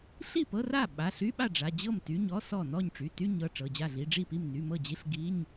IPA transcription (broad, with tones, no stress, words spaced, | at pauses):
ɬi˥˩pɤ˧˥˧ra˥˩ ɓa˩˧˩ɬy˧˥˧ɓa˥˩ ɖ͡ʐa˩˧˩d͡ʑɤ˥˩m ty˩˧˩ɲɔ˧˥˧ sɔ˥˩ nɔ˥˩ɲʈ͡ʂy˩˧˩ty˧˥˧ɲɤ˩˧˩ ʈ͡ʂɤ˩˧˩d͡ʑa˥˩ɮi˧˥˧ ɖ͡ʐi˥˩pi˥˩m ny˩˧˩mɤ˥˩d͡ʑi˧˥˧ɬ ɡi˧˥˧ɲ